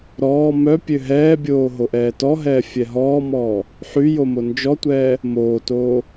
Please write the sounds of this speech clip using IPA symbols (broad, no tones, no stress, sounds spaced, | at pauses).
ɾ ɔː m œ pʲ ø ɦ ɛː bʲ oː ɦ o ʔ ɛː t ɔ ɦ ɛː fʲ ɛ ɦ ɔː m ɔː | ħ y j o m o n d͡ʒ ɔ tʷ ɛː | m oː t oː